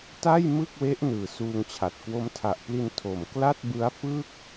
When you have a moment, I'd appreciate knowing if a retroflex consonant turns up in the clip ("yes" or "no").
no